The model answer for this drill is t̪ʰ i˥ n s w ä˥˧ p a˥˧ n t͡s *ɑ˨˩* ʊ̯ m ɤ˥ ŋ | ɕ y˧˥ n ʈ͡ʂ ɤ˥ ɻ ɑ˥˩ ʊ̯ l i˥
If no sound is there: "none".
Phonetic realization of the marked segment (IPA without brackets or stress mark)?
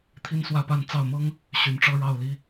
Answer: ɑ˥˩